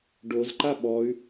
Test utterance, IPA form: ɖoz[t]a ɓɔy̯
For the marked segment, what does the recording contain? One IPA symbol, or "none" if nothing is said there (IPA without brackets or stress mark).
ǃ